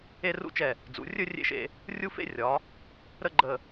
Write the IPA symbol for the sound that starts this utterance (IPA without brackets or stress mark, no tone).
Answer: e